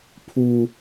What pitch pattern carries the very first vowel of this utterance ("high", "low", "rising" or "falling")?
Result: low